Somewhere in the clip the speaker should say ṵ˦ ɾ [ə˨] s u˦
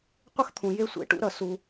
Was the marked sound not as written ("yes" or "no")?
yes